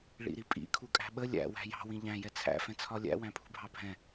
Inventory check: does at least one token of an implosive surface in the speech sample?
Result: yes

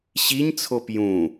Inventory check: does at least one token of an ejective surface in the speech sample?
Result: no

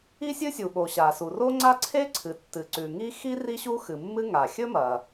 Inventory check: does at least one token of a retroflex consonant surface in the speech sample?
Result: no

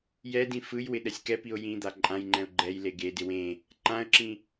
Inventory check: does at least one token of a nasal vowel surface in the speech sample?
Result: yes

